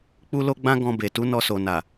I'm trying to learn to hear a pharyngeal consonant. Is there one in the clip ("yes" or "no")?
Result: no